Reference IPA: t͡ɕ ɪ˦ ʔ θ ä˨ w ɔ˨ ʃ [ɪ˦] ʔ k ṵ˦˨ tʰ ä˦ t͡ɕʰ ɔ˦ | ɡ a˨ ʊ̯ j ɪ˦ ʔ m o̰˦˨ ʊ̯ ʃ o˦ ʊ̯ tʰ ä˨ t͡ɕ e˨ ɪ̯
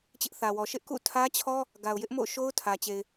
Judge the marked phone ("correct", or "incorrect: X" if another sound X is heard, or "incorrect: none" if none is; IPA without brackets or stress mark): correct